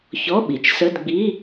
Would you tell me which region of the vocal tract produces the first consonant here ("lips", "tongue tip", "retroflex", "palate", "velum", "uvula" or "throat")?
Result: palate